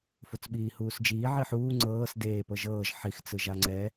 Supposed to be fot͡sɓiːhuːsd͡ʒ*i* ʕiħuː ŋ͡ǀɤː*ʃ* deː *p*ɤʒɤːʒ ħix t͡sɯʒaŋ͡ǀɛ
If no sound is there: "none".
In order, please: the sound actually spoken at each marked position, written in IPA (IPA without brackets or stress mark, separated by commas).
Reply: iː, s, p